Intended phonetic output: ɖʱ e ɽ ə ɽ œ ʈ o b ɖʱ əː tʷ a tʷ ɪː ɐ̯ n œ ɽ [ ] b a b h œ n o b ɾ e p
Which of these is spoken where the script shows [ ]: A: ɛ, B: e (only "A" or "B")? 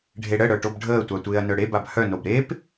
B